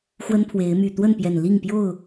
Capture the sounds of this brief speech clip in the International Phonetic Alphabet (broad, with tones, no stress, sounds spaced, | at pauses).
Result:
x w ə˦ n pʰ w e˨˦ ɪ̯ m y˨˩ t̪ w ə˥˨ n p j ɛ˨˩ n l i˥˨ ŋ p j o˥˨ ʊ̯